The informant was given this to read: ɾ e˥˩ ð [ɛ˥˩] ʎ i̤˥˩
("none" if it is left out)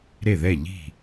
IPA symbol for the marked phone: ɛ˥˩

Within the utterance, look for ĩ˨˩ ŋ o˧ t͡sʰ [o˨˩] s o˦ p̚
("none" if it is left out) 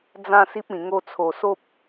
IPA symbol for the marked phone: o˨˩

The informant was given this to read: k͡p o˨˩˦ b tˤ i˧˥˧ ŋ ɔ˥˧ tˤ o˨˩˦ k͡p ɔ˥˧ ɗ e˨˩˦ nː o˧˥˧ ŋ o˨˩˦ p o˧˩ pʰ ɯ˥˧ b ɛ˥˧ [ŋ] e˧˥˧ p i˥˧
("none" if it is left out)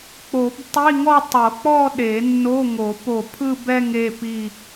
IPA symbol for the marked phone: ŋ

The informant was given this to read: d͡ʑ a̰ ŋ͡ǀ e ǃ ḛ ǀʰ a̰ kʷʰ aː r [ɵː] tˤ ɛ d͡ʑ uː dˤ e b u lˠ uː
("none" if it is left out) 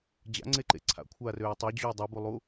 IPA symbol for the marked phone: øː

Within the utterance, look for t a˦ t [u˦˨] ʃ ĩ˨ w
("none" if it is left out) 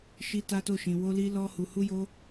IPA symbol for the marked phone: o˦˨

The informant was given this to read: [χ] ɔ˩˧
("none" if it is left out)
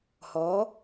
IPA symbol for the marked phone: h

